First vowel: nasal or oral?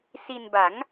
oral